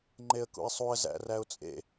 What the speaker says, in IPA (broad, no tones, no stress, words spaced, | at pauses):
ŋ͡ǃeə̯kṵɪ̯sˤuə̯ zæ̰ræʊ̯t͡sʼḛ